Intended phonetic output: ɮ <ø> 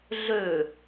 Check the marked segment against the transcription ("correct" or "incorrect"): correct